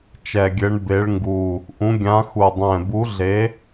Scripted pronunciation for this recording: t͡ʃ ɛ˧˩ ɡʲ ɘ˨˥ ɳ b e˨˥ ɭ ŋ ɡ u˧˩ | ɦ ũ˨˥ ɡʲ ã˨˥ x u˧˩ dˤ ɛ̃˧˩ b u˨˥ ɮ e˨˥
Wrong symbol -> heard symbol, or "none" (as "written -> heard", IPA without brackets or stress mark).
ɦ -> ʔ